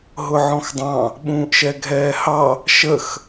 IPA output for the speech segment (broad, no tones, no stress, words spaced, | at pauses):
ɦʊʕɔ̃xdˤɑ̃ | ɓũːʔʃɛɡʱɛːhɑ | ʃəx